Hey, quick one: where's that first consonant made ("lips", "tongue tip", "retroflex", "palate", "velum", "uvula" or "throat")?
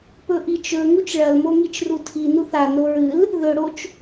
lips